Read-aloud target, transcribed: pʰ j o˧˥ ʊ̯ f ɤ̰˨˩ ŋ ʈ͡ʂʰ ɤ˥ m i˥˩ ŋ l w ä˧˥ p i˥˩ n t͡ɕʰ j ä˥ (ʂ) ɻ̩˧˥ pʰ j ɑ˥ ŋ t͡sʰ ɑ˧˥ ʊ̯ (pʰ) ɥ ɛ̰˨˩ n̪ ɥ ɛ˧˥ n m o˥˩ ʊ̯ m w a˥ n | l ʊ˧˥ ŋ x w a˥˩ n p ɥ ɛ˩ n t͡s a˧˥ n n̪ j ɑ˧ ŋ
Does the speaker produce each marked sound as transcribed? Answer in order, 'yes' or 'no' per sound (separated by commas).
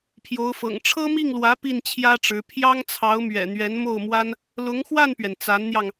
no, no